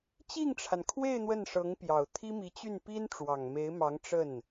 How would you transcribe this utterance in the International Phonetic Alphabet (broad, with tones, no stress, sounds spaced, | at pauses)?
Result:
t͡ɕ i˥˩ ŋ ʈ͡ʂʰ a˩ n kʰ w e˥˧ ɪ̯ n̪ w ə˥˩ n ʂ ɤ˧˥ ŋ p j ɑ˨˩ ʊ̯ t̪ʰ i˥ m i˧˥ t͡ɕ y˥˩ n p i˥ n ʈ͡ʂ w ɑ˨˩ ŋ m e˧˥ ɪ̯ m ɑ˧˥ ŋ ʈ͡ʂ ə˥˩ n